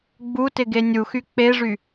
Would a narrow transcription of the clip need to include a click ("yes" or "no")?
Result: no